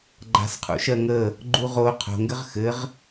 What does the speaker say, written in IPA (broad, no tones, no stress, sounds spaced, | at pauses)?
ɡ͡ǃ a̤ s qʰ ṵ ʃ ɜ ŋ ə | ɡ͡ǃ u ʁ o qʰ o̤ ŋ ɡ ɘ ʁ x ɘ ʁ